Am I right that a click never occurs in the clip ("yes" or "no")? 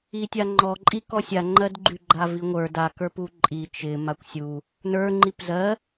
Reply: no